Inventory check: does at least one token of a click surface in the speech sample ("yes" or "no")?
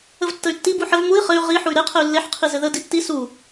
no